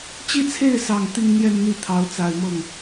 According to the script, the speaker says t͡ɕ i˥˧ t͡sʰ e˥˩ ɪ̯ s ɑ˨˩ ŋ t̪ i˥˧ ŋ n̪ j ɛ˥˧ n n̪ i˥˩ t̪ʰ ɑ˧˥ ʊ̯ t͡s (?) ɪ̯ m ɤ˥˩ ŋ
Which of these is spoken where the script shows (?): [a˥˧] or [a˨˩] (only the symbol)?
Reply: a˨˩